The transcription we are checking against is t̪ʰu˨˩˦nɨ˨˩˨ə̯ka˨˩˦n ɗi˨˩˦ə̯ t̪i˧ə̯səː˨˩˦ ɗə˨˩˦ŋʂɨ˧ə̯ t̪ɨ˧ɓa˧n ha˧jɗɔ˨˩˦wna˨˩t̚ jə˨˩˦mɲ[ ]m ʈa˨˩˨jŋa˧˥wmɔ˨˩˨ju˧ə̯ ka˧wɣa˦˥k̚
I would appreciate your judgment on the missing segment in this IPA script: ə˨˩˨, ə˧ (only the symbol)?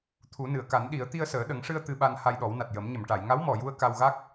ə˨˩˨